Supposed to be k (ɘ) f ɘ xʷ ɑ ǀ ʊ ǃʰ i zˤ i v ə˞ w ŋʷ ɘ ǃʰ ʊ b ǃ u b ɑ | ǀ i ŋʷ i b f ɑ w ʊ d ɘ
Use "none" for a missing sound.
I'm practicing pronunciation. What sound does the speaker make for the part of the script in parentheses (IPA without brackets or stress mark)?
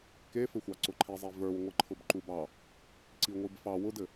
e